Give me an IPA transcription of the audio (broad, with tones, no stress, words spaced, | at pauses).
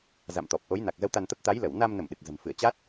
za̰˧˨mt̪ɔ˨˩p̚ʔo˨˦j na˨˩k̚zə˨˦w t̪a˧nt̪ə˦˥p̚ t̪a˨˦jlə˧˩w na˧mnə˧˩m ɗɨ˨˩k̚zə̤˨˩m fɨ˧˩ə̯ t͡ɕaː˦˥t̚